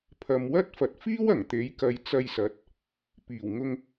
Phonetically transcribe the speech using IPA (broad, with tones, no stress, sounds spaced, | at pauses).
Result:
pʰ ɐ˨ m w ɐ˥ t̚ f ɐ˨ t̚ f iː˥ w ɐ˨˩ ŋ t̪ e˨˥ j k ɐ˨˧ j t͡s ɐ˧ j s ɐ˨˥ t̚ | p iː˨˩ w ŋ ʊ˧ ŋ